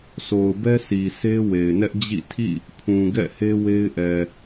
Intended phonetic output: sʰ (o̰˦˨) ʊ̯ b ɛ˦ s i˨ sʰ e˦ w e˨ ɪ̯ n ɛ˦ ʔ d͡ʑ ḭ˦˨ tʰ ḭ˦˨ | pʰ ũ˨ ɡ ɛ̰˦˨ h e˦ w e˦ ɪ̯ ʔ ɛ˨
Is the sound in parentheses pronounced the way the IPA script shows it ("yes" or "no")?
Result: no